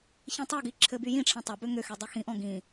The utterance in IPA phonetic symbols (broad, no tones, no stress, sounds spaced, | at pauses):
ç ĩ tˤ ʉ ɡ i ǁʰ ɘ b y j ĩ ʈ͡ʂʰ ɛ̃ tˤ ʏ b ʏ ŋ ʏ x y dˤ i x ĩ ʔ ɔ̃ ɡ ĩ